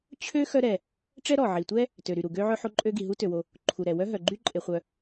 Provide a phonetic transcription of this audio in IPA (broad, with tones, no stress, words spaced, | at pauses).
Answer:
t͡ɕʰø˥ xœ˥ɾɛ˩ | ʈ͡ʂɛ˥ɾɔ˩ʕi˩tʷɛ˥ | tø˩ɾy˩ɾu˩ ɡø˥ʕœ˥ ħo˥ǃʼø˥ɡi˩ ɦu˥tø˩wo˩ | ǃʰu˩ɾɛ˩ wœ˥ɦœ˩ɡ͡ǃy˥ ǃʼe˩χʷœ˩